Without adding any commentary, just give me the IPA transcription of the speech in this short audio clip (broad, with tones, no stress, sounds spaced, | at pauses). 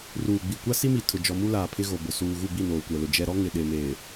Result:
r uː˨ ɡ͡b i˨ kʷ a˦ s i˦ m i˨ tʰ ʊ˨ d͡ʒ ɔ˨ m u˦ l aː˨ pʰ ɪ˦ ɣ o˨ b ʊ˨ s uː˨ ɣ u˦˨ b i˦˨ n oː˨ kʷ ɛ˨ l ʊ˨ d͡ʒ ɛ˨ ɾ ɔ˦ ŋ ɪ˨ ɗ e˨ m eː˨